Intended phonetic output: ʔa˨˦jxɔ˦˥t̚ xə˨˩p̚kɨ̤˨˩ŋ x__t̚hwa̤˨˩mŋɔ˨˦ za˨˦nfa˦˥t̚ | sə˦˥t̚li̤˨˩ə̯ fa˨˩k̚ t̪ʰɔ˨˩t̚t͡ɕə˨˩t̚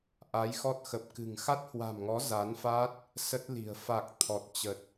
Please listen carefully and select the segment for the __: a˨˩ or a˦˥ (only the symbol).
a˦˥